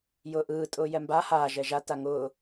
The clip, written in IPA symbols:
jʊːʔɯːtʼʊːjɛ mba haː ʒɛʒa taŋʊː

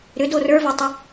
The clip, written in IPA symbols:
ɾʏdo rə˞vɐtˤʏ

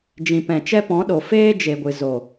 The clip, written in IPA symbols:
d͡ʒĩ˨ pɛ̃˨t͡ʃɛ˦pɔ̃˨˦ɗo˨ feː˦d͡ʒe˨ɡʷɨ˨ zo˨

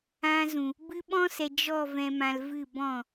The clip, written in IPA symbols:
ã˧zũ˨ | bɨ˧ɓɔ̃˦sɛ˨ d͡ʒɔ˦˨ vɛ̃˧mã˧l vɨ˦˨bɔ̃˦˨

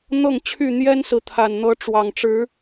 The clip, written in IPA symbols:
n̪ɤ˥˨ŋt͡ɕʰy˥˨ n̪jɛ˦nsɹ̩˨t̪ʰa˨˩nn̪ɤ˨˦ ʈ͡ʂwɑ˨˩ŋʈ͡ʂɻ̩˨˦

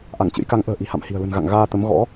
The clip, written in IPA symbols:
ʔa˧˩ŋt͡ɕɨ̰˧˥jka˨˦ŋʔə̤ː˨˩ ʔi̤˨˩ha̰˧˨mhi̤˨˩ə̯ lə̤˨˩nɣa̰˧˨ŋ ɣaː˧t̪ə˨˦m ɣɔ̰˧˥

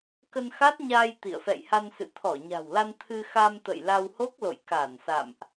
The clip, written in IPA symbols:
kə˧nxa˦˥t̚ɲaː˧j t̪ḭ˧˨ə̯ fɛ̰˧˨jha˧nsɨ̰˧˨ t̪ʰɔ˧˩ɲa̤˨˩wla˧n t̪ʰɨ˧xa˧mt̪ə̰˧˨j la˧who˦˥k̚lo̰˧˨j ka˧˩nsa̰˧˨mʔ

